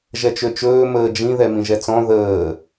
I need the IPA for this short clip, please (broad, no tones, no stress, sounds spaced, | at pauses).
ʒ ɛ t͡ʃ ø t͡ʃ ɵː m əː d͡ʒ ĩ ð ɛ m ĩ ʒ ɛ t͡s ɔ̃ ð əː